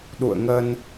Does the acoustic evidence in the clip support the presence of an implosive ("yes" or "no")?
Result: yes